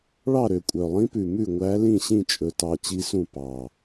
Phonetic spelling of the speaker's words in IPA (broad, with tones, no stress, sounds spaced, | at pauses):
ɭ ɑ˥˩ ɾ ø˨˩ kʷʼ œ˨˩ lˠ ĩ˧˥ p ʉ˨˩ m ʉ˥˩ ŋʷ æ˧˥ l ĩ˥˩ ɕ ĩ˥˩ t͡ʃʼ ɵ˨˩ t ɑ˨˩ t͡ɕ i˧˥ s ũ˥˩ p ɑ˨˩